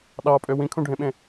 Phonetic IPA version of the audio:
ɗ ɑ pʼ ø w ĩ kʰ ũ ɖʱ ẽ ɓ ẽ

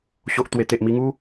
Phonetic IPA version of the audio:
ɕ o˨ ʔ t̪ w e˨˩ t̪ e˨ ʔ m i˧ ŋ u˦

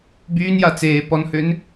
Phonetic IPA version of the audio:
b yː n j a t͡s eː p ɔ n h ø n

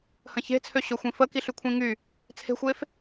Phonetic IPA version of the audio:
h ə̃ ç e̤ t͡sʰ ø ɕ ø xʷ ĩ f ə k i ɬ y kʷʰ ĩ ŋ y | t͡sʰ e̤ xʷ e f

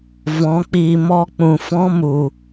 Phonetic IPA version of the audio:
v ɔ̃˨˦ k͡p iː˧ m ɔ˦ k͡p ũ˨ f ɔ̃˦ m u˨

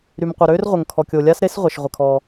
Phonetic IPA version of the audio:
ɾ y˩ m qʷ œ˩ ɾ øː˥ r ʁʷ ə˩ ŋ kʰ ɔ˩ kʲ o˩ lʲ a˥ s ɾ e˥ s ʁʷ ɛ˩ ʃ ʁʷ ə˩ kʰ ɔː˩

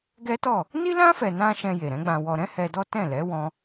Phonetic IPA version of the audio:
ɡ ɛ˦ t ɔ˦˨ | n i˦ l ã˦ f ɛ˧ n ã˦ ʃ ɛ̃˧ j e˨ ɾ ɛ̃˨˦ ɡ͡b ã˧ w ɔ˧ ɾ ɛ̃˦ h ɛ˧ d ɔ˦ t ɛ̃˦˨ l ɛ˨˦ w ɔ̃˧

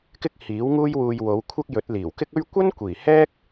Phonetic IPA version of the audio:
k ɪ˥ k̚ h iː˨˥ w ŋ uː˥ j w uː˧ j w o˨˧ w kʷʰ ɐ˥ k̚ j ɵ˨˥ t̚ l iː˨˩ w k ɪ˥ k̚ ɵ˥ ɥ kʷ ɐ˥ n kʷ iː˨˩ h ɛː˥ k̚

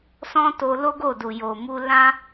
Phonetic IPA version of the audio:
s ɔ̃˦ t o˧ l o˦ ɡ o˦˨ d u˨ j o˨ m u˧ l ã˦

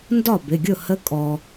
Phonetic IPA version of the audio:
n d ɒ˥˩ b ɪ˩˧˩ ɡʲ ʊ˥˩ h ə˧˥ kʼ ɔ˩

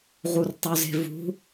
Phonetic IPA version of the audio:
ʁ u r tˤ u z e̤ v ṳ

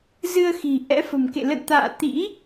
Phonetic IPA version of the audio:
z ɨ˧ ə̯ x i̤˨˩ ʔ ɛ̰˧˥ f ə̤˨˩ m k ḛ˧˨ l ə̰˧˨ n t̪ a̰ː˧˨ t̪ ḭ˧˥

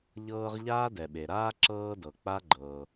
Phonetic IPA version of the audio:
ʎ ɤː˥ ʁ ʎ aː˥ d ɛ˩ ɓ e˩ ɾ aː˥ ǁ ɤː˥ d ɤ˩ k͡p a˥ ɡ͡ǃ ɤː˩

